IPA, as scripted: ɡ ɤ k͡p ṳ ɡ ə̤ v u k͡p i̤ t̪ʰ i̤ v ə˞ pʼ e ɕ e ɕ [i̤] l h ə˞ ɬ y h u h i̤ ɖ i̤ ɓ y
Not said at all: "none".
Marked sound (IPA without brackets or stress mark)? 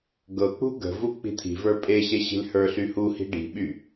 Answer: i̤